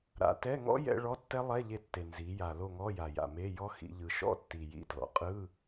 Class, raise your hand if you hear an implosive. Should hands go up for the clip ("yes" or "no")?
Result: no